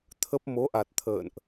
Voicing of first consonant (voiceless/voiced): voiceless